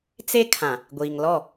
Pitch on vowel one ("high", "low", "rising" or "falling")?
high